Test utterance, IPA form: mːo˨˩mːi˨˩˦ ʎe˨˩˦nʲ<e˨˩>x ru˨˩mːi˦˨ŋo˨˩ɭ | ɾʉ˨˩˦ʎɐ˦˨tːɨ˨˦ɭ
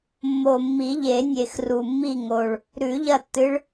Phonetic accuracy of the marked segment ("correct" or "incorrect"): correct